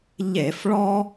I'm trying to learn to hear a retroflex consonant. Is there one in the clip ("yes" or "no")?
yes